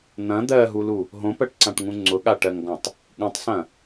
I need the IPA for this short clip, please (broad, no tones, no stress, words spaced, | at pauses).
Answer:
n̪ɐ̃ d̪ɜɦulu | ɦõpɜʈǀãʈŋũ ŋ͡ǀʊɠaʈɜŋɡɔ̃tˤ | ɠũtˤsɐ̃